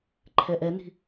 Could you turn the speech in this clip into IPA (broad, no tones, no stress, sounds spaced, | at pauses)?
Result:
ǃʰ ɛ ʔ ɛ n i̤